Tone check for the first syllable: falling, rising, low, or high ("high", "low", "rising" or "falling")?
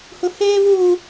high